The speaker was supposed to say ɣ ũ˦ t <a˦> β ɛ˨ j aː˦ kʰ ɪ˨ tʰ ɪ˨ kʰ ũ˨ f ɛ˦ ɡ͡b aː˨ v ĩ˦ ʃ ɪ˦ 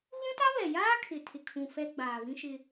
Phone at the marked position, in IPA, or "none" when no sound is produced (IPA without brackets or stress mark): a˦